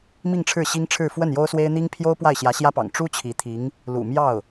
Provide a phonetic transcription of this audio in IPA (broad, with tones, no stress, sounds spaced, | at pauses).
m i˥˧ ŋ ʈ͡ʂʰ ɻ̩˥˩ ɕ i˥ ŋ ʈ͡ʂʰ ɻ̩˥˧ f w ə˥˩ n j o˥ ʊ̯ s w e˥ ɪ̯ n̪ i˥ ŋ pʰ j o˥ ʊ̯ p w a˥˩ ɪ̯ ɕ j ä˧˥ ɕ j ä˥ p ɑ̰˨˩ ŋ ʈ͡ʂ u˥ t͡ɕʰ i˧˥ t̪ʰ i˧˥ ŋ | l ṵ˨˩ m j ɑ˥˩ ʊ̯